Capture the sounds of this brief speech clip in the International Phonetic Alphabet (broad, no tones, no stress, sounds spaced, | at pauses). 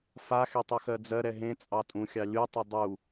f a x e tˤ ø x ɜ d͡z ɜ ɾ ɛ ɦ ẽ t͡sʼ ɑ tʼ ũ xʲ ɑ lʲ u tˤ ʊ dˤ u